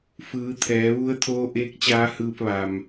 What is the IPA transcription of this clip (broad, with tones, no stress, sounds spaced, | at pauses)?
f ɯː˩˧ t̪ʰ ɛː˩˧ ʋ u˧˥ ə̯ t̪ʰ oː˧˥ ʔ eː˧˥ k̚ t͡ɕ aː˧˥ h ɯː˧ p̚ ʋ a˩ m